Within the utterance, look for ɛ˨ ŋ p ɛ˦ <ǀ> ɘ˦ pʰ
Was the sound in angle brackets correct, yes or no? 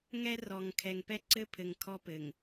yes